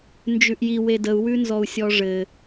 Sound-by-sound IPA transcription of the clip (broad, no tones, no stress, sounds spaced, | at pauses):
n d͡ʒ ʉ ʔ j i w e d ə u̯ w ʉ n z ɔ u̯ sʲ ɔ ʐ ɘ